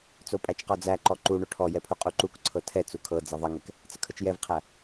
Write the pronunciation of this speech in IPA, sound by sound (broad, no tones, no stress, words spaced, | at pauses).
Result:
t͡sopʼæt͡ʃqɔd͡zæ ǃɔǃu ɳoʈʰɔjɛpʰu qʼuǃuk ǀʰɤtʰɛ t͡sukʰɤ d͡zɛðˤəŋɛk | t͡səkʰət͡ʃjɛvqʰæ